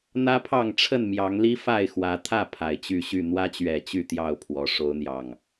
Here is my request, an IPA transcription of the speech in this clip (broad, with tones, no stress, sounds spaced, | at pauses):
n̪ ä˦ pʰ ɑ˥˨ ŋ ʈ͡ʂʰ ə˥˨ n m j ɑ˨˦ ŋ l i˦ f a˥˨ ɪ̯ x w ä˨˦ t̪ʰ ä˥˨ pʰ a˨˩ ɪ̯ t͡ɕ y˥˨ ɕ y˥˨ n̪ w ä˦ t͡ɕ ɥ ɛ˨˩ t͡ɕ y˥˨ t̪ j ɑ˥˨ ʊ̯ pʰ w ɔ˨˦ ʂ o˨˦ ʊ̯ n̪ j ɑ˨˩ ŋ